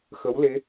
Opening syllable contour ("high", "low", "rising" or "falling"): rising